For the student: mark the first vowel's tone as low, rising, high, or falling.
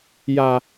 low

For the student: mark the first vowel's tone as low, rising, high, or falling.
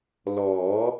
rising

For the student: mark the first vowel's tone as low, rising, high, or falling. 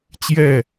falling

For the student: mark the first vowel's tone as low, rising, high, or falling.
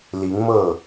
rising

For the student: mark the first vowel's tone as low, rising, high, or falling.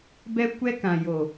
high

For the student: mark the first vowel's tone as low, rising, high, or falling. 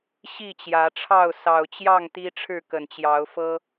falling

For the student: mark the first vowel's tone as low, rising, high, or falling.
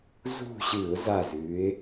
falling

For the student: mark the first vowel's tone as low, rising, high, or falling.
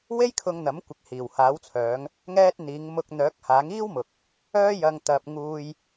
high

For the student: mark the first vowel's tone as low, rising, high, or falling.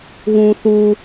low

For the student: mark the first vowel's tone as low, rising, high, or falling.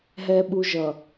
low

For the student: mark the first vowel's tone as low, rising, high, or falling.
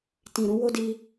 low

